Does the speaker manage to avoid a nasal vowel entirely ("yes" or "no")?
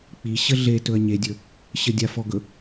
yes